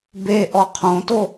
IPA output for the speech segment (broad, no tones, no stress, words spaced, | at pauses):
be ʔɔqʰõto